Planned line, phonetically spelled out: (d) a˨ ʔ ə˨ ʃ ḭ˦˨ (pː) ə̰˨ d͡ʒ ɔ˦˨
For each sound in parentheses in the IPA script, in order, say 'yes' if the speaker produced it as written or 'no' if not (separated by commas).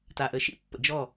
no, yes